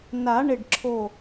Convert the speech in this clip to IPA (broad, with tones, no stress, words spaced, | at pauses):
na˨˩˦ɳɪ˧˩ɖǁʰo˧˩